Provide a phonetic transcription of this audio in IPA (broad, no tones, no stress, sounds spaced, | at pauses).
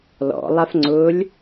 l ɔ̰ lˠ a f ŋ͡ǀ ʊː lʲ